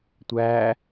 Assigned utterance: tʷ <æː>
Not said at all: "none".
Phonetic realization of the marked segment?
æː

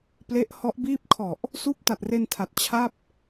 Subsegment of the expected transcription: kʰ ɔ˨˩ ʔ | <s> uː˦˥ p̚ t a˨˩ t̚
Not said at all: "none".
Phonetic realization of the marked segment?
s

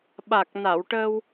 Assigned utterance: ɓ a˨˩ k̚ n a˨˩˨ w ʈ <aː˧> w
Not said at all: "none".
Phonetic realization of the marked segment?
əː˧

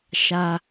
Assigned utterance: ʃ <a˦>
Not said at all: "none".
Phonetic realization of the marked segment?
a˦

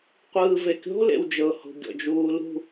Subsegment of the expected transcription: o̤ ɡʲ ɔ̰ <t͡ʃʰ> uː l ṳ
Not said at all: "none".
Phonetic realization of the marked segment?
d͡ʒ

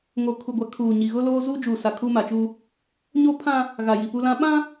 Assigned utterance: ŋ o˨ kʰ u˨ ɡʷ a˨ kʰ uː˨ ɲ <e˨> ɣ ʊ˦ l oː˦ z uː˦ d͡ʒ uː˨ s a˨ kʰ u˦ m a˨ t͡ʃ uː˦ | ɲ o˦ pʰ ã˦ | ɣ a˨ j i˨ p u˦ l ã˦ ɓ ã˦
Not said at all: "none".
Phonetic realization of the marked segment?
i˨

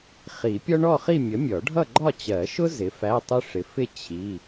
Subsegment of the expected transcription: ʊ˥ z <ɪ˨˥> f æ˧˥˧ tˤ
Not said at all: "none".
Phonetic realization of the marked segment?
ɪ˨˥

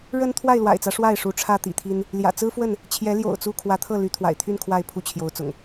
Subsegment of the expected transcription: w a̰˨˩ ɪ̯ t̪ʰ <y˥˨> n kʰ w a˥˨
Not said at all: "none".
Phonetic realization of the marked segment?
y˥˨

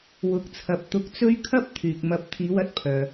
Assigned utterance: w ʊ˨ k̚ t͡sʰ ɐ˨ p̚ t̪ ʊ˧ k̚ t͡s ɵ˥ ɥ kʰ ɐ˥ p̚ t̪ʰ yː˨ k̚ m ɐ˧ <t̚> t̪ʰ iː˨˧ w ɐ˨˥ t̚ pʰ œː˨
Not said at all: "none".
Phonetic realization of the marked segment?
p̚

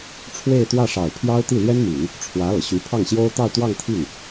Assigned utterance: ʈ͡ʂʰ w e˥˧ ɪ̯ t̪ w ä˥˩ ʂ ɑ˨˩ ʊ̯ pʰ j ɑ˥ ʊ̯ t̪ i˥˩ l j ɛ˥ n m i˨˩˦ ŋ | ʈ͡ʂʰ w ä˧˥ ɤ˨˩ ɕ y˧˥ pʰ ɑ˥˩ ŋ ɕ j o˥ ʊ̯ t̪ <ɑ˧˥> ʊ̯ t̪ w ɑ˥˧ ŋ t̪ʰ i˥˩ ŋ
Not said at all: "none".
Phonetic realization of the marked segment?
ɑ˥˧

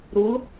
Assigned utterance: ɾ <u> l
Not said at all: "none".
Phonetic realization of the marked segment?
u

